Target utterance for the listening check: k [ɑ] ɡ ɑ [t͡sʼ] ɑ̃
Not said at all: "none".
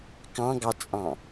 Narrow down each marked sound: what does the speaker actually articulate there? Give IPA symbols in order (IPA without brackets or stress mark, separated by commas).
ɑ̃, t͡sʼ